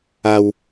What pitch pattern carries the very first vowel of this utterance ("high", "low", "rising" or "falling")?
low